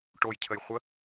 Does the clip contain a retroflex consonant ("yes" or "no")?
yes